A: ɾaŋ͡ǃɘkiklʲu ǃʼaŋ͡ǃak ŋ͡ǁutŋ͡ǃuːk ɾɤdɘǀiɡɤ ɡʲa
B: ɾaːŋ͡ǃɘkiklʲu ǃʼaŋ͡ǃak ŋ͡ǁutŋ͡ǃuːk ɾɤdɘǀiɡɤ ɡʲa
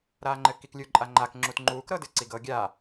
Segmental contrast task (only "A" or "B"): B